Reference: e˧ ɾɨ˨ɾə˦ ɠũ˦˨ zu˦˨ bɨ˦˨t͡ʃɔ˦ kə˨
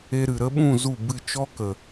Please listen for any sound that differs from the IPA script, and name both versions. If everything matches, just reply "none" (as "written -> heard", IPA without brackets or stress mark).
ɠ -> ɓ